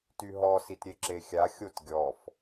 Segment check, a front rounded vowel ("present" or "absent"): present